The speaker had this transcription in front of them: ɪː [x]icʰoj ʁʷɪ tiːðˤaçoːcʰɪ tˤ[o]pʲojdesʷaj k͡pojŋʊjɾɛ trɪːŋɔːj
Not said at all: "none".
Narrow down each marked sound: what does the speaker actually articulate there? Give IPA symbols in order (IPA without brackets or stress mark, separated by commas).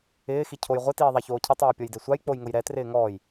x, oː